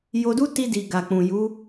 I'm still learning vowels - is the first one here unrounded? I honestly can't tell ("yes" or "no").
no